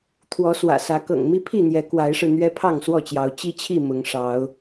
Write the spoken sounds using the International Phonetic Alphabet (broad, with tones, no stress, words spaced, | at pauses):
t̪ʰwɔ˨˦swä̰˨˩sä˨˦ kɤ̰˨˩ŋmi˦pʰi˥˨n̪jɛ˨˦ kwa˨˦ɪ̯ʂɻ̩˧ n̪ɥɛ˦pʰɑ˥˨ŋswɔ˥˨t͡ɕjɑ˨˦ʊ̯ t͡ɕi˦t͡ɕʰi˥˨ mʊ˨˦ŋʂɑ˨˦ʊ̯